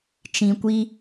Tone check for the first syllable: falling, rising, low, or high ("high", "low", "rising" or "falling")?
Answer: low